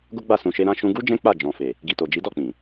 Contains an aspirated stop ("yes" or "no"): no